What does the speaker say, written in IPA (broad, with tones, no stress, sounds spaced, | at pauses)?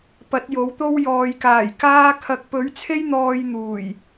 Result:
p ɐ˨˥ t̚ j o˨˥ w t̪ o˥ w j ɔː˨ j k aː˨˩ j k aː˥ kʰ ɐ˨˥ k̚ p ɵ˨˥ ɥ t͡sʰ e˥ j n̪ ɔː˧ j n̪ uː˨˩ j